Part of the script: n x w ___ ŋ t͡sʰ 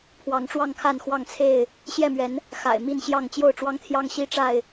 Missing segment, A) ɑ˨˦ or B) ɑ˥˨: B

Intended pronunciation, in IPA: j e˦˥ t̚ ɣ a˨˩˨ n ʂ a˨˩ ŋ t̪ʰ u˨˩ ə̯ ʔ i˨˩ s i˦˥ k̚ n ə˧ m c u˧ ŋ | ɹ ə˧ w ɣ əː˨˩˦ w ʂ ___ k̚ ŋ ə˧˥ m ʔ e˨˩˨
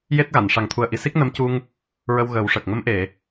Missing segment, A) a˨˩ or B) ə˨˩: B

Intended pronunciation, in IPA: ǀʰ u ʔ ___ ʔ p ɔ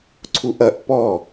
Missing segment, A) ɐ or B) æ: A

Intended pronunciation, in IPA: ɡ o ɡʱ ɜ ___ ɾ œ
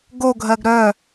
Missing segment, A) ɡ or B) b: A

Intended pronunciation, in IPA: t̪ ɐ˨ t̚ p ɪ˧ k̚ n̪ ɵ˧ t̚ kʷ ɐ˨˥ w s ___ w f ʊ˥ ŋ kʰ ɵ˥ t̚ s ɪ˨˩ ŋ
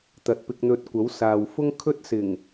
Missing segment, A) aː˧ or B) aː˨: B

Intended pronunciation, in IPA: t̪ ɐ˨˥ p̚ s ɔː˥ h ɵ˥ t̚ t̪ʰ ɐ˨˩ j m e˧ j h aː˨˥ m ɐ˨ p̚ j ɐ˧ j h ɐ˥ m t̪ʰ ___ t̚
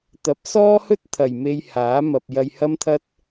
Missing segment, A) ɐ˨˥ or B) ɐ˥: B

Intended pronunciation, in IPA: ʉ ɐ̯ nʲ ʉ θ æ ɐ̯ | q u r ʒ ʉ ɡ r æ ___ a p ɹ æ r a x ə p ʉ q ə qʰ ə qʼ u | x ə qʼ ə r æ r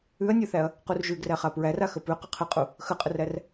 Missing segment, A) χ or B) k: A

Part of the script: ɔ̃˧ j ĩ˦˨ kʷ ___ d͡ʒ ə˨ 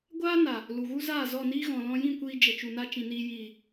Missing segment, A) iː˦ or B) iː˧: B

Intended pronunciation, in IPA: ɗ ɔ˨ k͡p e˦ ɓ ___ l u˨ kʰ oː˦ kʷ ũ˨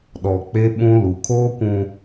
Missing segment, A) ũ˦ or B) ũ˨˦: A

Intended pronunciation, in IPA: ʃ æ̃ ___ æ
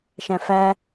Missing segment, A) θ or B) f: B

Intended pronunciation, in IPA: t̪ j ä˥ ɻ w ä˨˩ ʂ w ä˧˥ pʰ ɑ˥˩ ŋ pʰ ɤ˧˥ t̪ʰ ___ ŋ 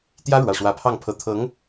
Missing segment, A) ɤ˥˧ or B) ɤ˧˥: B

